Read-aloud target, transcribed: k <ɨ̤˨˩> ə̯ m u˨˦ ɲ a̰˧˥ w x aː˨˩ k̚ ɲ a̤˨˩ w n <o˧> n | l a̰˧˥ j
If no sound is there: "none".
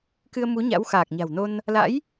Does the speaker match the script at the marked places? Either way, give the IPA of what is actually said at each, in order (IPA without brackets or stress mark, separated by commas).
ɨ˧, o˧